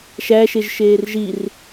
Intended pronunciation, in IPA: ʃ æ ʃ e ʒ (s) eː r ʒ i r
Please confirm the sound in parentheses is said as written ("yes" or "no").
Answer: no